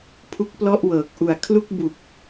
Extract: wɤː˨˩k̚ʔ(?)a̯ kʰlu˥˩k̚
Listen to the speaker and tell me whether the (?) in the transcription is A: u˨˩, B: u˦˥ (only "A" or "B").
A